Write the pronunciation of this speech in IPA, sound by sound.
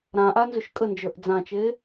ɾ ã ʔ a n z ʏ ʃ kʼ ə n d͡ʒ ə˞ ʔ d͡z ã t͡ʃ e

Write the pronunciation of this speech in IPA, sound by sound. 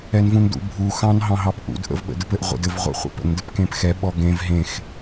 ɛ n v ũ n d ṵ bʱ u x ɑ̃ n ɦ ɑ̃ ɦ ɑ p ʔ ṵ d ʔ ə̰ v ɓ ə̰ d ɘ p ɘ ʔ ʁʷ ḛ d ɘ v ʁʷ ḛ χʷ ə̰ p ə̰ n d ɘ p k ẽ p x ɛ ɓ ɔ ɡ ẽ v ɦ ẽ x

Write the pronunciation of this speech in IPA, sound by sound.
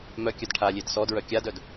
m œ kʲ œ d ʈʰ a lʲ e d s ɔ d ɹ œ kʲ a d œ d

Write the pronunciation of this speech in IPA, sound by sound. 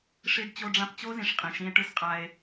ʂ i˦ ɖ t͡ɕ o˦ ɖ͡ʐ ã˦ p t͡ɕ o˦ z ĩ˨ ʂ qʼ ĩ˨ ʃ ĩ˦ e̯ ʈ ɨ˦ s qʼ a˦ e̯

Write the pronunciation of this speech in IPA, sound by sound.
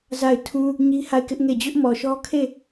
z a˦˨ ɪ̯ tʰ ũ˦ | ɲ i˦ h a˦˨ ɪ̯ k ɪ˦ ʔ ŋ e˦˨ d͡ʑ ʊ˦ ʔ m ɔ˨ ʃ ɔ˦ kʰ e˦˨

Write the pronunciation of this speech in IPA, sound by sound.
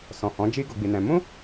s ɔ̃˨ h ɔ̃˨˦ d͡ʒ i˦ ɡ o˧ ɡ͡b i˧ n ɛ̃˧ m ũ˦

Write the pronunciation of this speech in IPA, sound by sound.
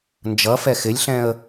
n d͡ʒ ʌ f ɛ x ɪ lʲ ɬ ɛ̃ ə̯

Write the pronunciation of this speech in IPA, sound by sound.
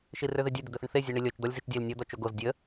ʃ i r ø ð e dʲ ø d̪ ɘ d̪ ɘ θ ə ɳ θ e zʲ ø ɳ i lʲ ɔ t͡ʃ d̪ ɔ lʲ z i t͡ʃ dʲ e l nʲ ɔ d̪ ɔ t͡ʃ o ɡ o z dʲ ə

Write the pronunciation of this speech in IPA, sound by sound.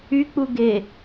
y k͡p u ɡ e

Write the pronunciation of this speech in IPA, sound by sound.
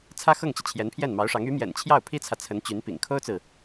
t͡sʰ ä˥ x ɤ˥˩ ŋ t͡ɕ i˩ t͡ɕʰ j ɛ˧˥ n pʰ j ɛ˥˩ n m ɑ˧˥ ʊ̯ ʂ ɑ˧˥ ŋ y˧˥ m j ɛ̰˨˩ n t͡ɕʰ j ɑ˥˩ ʊ̯ pʰ i˥ t͡sʰ ä˨ t͡sʰ ə˧˥ n t͡ɕ y˧˥ n p ḭ˨˩ ŋ kʰ o˥ ʊ̯ t͡s ɹ̩˨

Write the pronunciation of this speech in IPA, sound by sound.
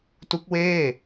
t u˦˥ k̚ w eː˥˩

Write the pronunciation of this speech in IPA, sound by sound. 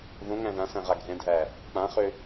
ð õ ŋ æ̃ ð ã s æ̃ ʁ a ɡʱ ɛ̃ dʱ æ | k͡p ã χ ø

